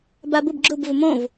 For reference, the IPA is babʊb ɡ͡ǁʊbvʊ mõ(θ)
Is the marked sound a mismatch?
yes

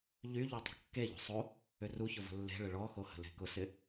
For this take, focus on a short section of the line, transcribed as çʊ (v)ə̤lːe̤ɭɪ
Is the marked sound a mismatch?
no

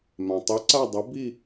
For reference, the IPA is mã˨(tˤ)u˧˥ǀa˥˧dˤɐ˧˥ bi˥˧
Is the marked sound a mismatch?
no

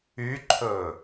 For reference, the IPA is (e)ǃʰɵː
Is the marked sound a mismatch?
yes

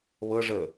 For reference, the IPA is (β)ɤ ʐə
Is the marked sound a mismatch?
no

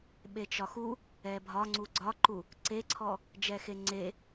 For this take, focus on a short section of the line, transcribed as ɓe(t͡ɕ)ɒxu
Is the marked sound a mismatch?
yes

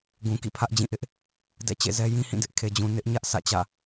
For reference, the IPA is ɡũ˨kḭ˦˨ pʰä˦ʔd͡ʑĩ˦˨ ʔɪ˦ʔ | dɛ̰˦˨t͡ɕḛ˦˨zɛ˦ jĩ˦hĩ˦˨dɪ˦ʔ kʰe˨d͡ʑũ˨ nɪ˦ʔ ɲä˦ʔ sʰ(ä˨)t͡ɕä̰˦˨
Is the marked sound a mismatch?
yes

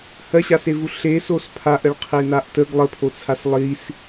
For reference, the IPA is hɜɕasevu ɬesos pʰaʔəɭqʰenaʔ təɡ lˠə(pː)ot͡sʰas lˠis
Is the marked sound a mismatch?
yes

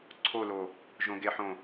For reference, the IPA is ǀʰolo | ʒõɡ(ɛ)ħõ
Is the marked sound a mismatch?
yes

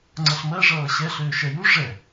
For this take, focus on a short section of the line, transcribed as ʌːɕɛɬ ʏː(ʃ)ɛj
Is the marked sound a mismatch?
no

